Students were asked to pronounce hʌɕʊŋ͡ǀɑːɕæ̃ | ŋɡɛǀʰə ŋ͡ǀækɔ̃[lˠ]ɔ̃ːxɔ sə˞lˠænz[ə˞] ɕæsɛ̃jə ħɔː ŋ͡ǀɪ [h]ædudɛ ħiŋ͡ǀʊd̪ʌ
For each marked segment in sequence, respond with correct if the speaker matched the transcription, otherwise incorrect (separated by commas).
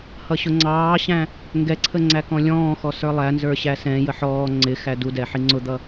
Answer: incorrect, correct, incorrect